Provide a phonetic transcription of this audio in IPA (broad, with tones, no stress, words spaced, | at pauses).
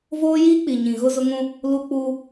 voː˦jiː˦k͡pi˨ɲĩ˨ ɣʊ˦zʊ˦ŋũ˦ | lu˦k͡pu˦